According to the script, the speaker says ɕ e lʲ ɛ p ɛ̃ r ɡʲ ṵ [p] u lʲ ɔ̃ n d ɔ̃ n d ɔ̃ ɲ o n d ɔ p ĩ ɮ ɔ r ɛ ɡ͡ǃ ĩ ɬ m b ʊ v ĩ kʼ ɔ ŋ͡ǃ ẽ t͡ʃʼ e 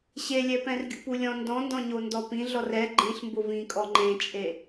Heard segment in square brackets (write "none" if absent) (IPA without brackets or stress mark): p